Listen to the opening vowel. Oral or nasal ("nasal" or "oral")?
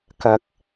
oral